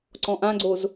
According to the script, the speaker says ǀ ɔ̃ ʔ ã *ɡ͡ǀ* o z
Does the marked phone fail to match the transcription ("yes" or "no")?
no